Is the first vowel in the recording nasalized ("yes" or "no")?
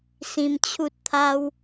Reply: yes